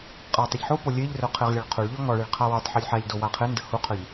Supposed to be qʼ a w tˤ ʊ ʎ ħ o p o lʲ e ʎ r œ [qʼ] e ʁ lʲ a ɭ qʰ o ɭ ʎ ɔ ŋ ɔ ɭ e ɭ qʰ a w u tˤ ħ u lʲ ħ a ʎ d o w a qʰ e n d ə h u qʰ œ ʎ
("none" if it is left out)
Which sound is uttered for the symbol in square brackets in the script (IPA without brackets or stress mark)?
qʰ